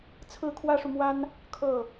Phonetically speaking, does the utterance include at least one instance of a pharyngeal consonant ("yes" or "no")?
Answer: no